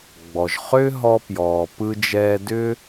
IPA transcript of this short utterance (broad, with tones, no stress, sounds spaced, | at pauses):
ɡ͡b ɔ˩ ʒ χ ʏː˥ ɦ ɔ˧ p j ɔː˩ p ɯ˧ d͡ʒ ɛː˧ d ʏ˥